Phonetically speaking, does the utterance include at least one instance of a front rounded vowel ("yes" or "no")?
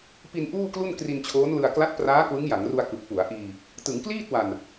no